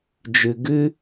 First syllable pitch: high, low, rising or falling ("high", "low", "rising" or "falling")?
low